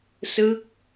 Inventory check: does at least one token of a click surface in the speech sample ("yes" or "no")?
no